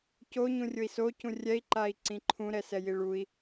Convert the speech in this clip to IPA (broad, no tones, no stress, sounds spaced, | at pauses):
c o ɲ ũ rʲ ʊ i̯ s o c ũ rʲ ɛ i̯ ǃ a i̯ ǀ ĩ ǃʰ ũ ɾ ɛ s ɛ j i ɭ u i̯